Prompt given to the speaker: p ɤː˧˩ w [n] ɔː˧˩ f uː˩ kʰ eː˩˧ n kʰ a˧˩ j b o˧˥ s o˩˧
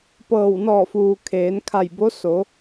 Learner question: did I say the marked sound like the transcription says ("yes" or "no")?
yes